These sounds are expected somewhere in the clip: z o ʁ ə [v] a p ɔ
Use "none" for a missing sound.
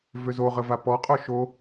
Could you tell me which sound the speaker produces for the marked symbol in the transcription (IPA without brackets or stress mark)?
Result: v